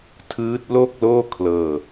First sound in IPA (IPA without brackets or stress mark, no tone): tʰ